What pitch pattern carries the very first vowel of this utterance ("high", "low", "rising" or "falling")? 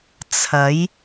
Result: rising